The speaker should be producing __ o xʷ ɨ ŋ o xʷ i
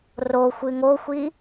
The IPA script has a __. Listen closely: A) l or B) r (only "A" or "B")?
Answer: B